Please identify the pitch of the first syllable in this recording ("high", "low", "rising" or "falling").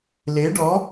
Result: rising